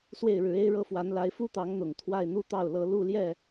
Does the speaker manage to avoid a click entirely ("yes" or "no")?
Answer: yes